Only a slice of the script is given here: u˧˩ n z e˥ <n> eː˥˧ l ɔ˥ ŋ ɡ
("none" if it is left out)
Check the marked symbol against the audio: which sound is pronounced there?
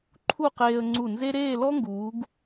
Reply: ɾ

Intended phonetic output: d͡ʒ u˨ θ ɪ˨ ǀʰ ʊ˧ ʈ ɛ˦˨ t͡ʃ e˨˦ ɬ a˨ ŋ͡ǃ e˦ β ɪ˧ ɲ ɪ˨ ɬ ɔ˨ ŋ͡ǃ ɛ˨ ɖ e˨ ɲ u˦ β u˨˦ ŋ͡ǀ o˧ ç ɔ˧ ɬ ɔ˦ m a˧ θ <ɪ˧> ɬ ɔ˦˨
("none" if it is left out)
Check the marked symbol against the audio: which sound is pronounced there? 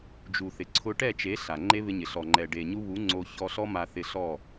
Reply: ɪ˧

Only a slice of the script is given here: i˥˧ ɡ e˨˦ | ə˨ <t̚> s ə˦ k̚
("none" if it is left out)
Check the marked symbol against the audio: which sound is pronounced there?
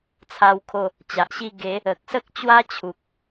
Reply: k̚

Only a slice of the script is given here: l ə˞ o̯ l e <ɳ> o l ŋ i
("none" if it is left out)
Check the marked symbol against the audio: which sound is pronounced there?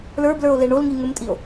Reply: ɳ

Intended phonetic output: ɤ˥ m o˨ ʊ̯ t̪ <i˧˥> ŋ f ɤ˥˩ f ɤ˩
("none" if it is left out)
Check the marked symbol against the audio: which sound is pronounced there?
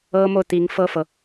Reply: i˧˥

